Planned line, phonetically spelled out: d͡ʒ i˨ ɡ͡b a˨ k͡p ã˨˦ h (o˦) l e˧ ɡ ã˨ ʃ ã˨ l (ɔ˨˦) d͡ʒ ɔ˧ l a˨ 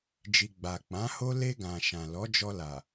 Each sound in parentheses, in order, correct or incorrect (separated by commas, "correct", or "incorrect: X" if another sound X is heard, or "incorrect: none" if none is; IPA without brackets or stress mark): correct, correct